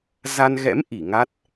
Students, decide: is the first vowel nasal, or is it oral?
oral